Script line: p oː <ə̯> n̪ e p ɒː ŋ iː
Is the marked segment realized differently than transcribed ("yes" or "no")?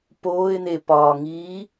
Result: yes